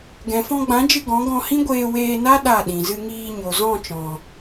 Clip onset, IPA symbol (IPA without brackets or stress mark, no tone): ɡ